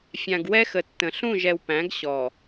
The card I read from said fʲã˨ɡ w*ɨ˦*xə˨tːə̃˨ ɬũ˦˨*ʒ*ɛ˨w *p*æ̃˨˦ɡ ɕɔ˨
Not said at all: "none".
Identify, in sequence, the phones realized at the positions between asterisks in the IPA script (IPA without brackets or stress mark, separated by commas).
ɛ˦, ʒ, p